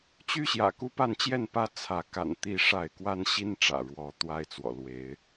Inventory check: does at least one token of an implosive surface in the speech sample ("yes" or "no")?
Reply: no